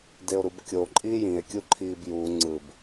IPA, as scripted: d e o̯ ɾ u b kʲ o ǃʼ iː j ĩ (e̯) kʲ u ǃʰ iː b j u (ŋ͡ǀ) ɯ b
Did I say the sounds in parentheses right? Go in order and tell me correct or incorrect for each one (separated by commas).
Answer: correct, correct